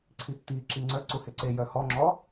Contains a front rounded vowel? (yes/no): yes